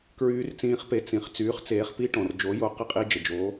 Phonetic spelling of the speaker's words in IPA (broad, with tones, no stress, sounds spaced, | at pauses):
k ɹ yː˦˥ r t͡s ĩː˦˥ χ p e˨˥ t͡s ĩ˩ χ t͡s yː˨˥ χ t͡s eː˨˥ χ p i˦˥ ʈ ɔ̃˩ r d͡ʒ o˨˥ j o˨˥ q ə˦˥ qʼ i˦˥ d͡ʒ ə˩ d͡ʒ oː˨˥